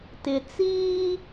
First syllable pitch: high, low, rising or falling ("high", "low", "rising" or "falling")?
low